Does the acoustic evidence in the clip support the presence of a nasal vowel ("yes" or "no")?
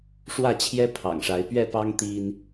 no